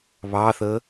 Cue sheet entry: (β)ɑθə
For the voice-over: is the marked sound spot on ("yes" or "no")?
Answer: yes